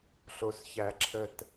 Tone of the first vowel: low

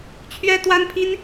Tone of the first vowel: high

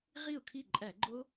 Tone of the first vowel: falling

